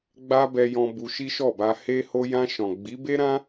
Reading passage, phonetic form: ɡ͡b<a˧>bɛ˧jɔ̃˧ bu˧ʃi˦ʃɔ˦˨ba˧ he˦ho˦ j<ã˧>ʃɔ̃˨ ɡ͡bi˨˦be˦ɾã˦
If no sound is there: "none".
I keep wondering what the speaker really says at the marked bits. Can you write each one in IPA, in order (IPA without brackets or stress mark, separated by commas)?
a˦, ã˧